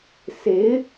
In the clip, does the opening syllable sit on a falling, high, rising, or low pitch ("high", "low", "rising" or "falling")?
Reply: rising